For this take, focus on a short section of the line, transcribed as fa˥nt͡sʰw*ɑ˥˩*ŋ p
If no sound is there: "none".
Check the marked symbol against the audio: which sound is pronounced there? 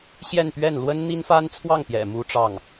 ɑ˥˩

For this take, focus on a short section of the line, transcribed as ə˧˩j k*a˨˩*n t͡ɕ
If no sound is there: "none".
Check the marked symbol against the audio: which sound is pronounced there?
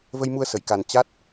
a˨˩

